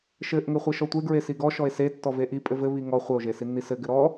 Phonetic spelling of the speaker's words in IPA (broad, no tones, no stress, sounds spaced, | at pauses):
ʃ ɘ ʔ ŋ ɘ χʷ ɘ ʃ ɔ tʷ e ɡ ɹ e s i ɡ ɔ ʃ ɔ e̯ s e tː ɔ v e ʔ i pʼ ɘ v ɘ β i ŋ ɔ χʷ ɘ o̯ ʒ e s i nː i s ɘ ɡ ɘ ɾ ɔ